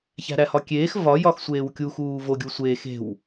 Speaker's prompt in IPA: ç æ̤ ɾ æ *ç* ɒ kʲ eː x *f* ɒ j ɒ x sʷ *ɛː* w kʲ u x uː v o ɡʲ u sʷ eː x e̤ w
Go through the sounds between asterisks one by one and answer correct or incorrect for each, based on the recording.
incorrect, incorrect, incorrect

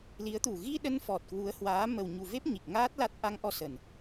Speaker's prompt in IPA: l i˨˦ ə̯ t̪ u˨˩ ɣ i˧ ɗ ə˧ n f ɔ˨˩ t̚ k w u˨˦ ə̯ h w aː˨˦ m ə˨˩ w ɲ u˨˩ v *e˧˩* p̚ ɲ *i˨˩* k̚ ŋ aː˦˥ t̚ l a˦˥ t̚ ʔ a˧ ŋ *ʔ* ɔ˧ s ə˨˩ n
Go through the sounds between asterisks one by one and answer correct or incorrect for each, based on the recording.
incorrect, correct, correct

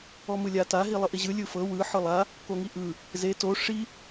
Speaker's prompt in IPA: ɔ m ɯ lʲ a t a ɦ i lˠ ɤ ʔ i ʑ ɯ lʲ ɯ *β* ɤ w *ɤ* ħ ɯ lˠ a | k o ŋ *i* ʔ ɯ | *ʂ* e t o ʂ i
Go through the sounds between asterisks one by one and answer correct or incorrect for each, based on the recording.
incorrect, incorrect, correct, incorrect

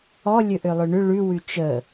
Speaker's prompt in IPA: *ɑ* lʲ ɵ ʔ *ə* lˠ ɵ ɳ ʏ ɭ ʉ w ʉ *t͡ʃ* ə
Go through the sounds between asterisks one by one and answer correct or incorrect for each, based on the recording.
incorrect, incorrect, correct

